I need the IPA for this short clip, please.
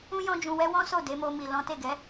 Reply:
ũ˦ j ɔ̃˦ d͡ʒ ũ˧ w ɛ˦ w ɔ̃˦ s o˦˨ d e˨˦ m o˧ m i˨ l ɔ̃˨˦ t e˦˨ ɡ ɛ˨˦

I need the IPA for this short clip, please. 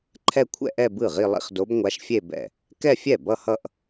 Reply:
ǃʰ ɛ˥˧ kʷʰ ɛ̰˥˧ ʔ ɛ˥˧ b ɯ˥˩ ʁ i˥˧ lˠ ḭ˥˧ χ d o˧˥ b ŋʷ a˧˥ ʃ fʲ e˥˧ b ɛ̰˥˩ | k ɛ˥˧ fʲ ɛ˥˩ b ʌ˥˧ h ʌ˥˧ ʔ

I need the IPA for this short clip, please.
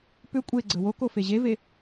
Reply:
p ʏ kʷʼ e ɡ͡ǀ ə w o k o f e ʑ e v e

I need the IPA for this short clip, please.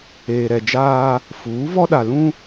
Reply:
eː˨ ɾ ɛ˨ d͡ʒ aː˦ | f uː˨˦ v ɔ˦ ɗ a˨ l ũ˦

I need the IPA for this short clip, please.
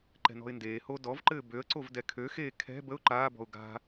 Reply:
ǃ ɛ̤ n ɔ̤ ɪ̯ n d eː h oː d ɔ v ǃ ɘː b ø ə̯ ǀ o v d ɛ kʰ ø x eː kʰ ɛ̤ b ə ʊ̯ ǃ aː b ɔ̤ ʊ̯ ɡ a̤

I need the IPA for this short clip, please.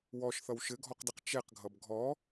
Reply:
w ɔ ʃ θ ʌ w ʃ ɘ ɡʱ ɔ q d ɪ q t͡ʃ ɛ q ɡʱ ʌ b ɡʱ ɔ

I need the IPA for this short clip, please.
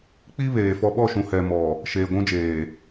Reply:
k͡p i˦ β eː˨ f ɔ˦ ɓ ɔ˦˨ ʃ ũ˨ h ɛ˨ m ɔ˨ | ʃ eː˨ ɡʷ ũ˦ d͡ʒ eː˨

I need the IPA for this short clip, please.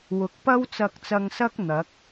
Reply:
w ʊ˨˥ k̚ p ɐ˥ w t͡s ɐ˧ k̚ t͡s ɐ˧ ŋ s ɐ˥ k̚ n̪ ɐ˨˥ k̚

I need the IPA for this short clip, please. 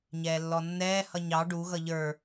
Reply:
ɲ ɛː lː ɔ nː ɛː h ʌ ɲ ɑ ɖ u ɣ ʌ ʎ ə˞

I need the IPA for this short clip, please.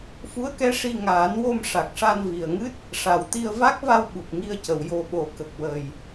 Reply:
f u˧˥ ə̯ k ɛ˧˥ ʂ i˧ ŋ aː˨˩˦ n w o˧ m ʂ a˨˩ k̚ ʂ a˧ n v i˨˩ ə̯ ŋ ɨ˦˥ t̚ | ʂ a˨˩ w t̪ i˧ ə̯ v a˦˥ k̚ v a˧ w ɓ u˨˩ k̚ ŋ i˧ ə̯ c ə˨˩˨ w j o˨˩ ɓ o˨˩˨ k ə˨˩ k̚ w ə˨˩ j

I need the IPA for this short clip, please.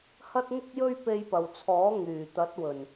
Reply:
h ɐ˥ t̚ ŋ ʊ˥ k̚ j ɵ˥ ɥ p e˧ j p ɐ˨ w t͡sʰ ɔː˨˥ ŋ yː˨˩ t̪ ɐ˨˥ t̚ w ɵ˨˩ n

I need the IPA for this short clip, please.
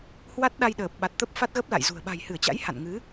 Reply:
h w a˦˥ t̚ ɗ a˧ j ɗ əː˨˩ p̚ ɓ a˨˩ t̚ t̪ ə˦˥ p̚ f a˦˥ t̚ ɣ ə˦˥ p̚ l a̰˧˨ j z ṳ˨˩ ə̯ ɓ a̤˨˩ j h ɨ˧˩ ə̯ t͡ɕ a̰˧˥ j h a̰˧˨ n ŋ ɨ˨˦

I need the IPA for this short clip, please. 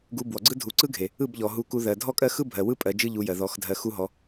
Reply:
ɡ u˧ b w ɔ˨ ɡ͡ǀ ɯ˦ dʱ u˨ ǀ ɯ˦ ɡʱ e˨ | ɯ˦˨ b ʎ ɔ˨ ɦ u˧ k u˧ ð ɜ˨ dʱ ɔ˦ kʼ ɜ˦ x ɯ˦ bʱ ɜ˨ w ɯ˦ pʼ ɜ˧ d͡ʒ ɯ˦ ʎ u˧ j ɜ˨ ð ɔ˨˦ x dʱ ɜ˧ x u˦ ɦ ɔ˧

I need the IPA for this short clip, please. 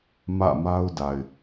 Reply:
m ä̰˦˨ m a˦ ʊ̯ d a˨ ɪ̯

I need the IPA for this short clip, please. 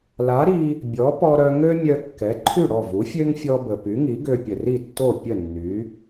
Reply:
l a˩˥ ɾ i˧ | bʲ ɔ˩˥ p ɔ˧ ɾ œ˧ ŋ ø˥ mʲ œ˧ kː ɛ˩˥ ǃʰ y˥˩ ɽ ɔ˥˩ v u˩˥ fʲ ø˥ ŋ fʲ ɔ˧ b ə˩ p y˩˥ ŋ i˩˥ ɡ ø˧ pʲ ə˩ r i˥˩ tː o˥˩ pʲ ə˥˩ nː y˩˥

